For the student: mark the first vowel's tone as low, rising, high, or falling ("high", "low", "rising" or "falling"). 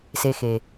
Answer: low